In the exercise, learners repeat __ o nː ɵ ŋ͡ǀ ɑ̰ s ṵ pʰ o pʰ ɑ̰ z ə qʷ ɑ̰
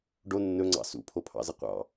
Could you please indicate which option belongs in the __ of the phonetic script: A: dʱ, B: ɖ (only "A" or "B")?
B